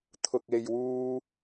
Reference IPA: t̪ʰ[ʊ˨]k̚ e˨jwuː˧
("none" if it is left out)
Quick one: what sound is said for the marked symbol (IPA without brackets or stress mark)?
ʊ˨